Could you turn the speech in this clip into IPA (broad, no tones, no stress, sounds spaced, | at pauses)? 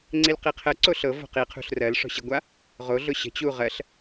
ŋ͡ǀ i l q i qʰ ə ǀ o ɬ ɤ v o̤ q i qʰ ṳ ɬ r ɜ l ʂ ɔ̤ ɕ i ɡʷ a | ʁ o ɮ ʊ ɕ ə̤ t͡ɕ u ʁ ɜ ɬ